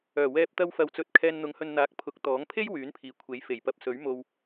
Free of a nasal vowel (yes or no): yes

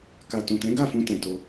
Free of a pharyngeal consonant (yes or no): yes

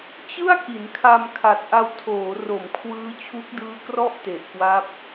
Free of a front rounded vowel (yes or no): yes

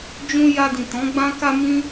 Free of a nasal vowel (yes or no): no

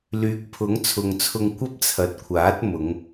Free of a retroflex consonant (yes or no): yes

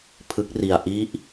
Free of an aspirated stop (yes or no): no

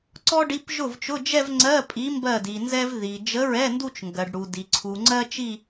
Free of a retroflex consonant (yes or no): no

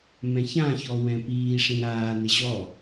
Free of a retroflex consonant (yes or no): no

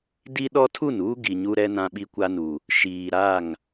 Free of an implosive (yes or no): no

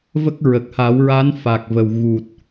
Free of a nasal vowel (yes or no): yes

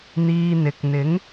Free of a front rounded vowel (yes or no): yes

